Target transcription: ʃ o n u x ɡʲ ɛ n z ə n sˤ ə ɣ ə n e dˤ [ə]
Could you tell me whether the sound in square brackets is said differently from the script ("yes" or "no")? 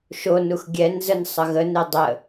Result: no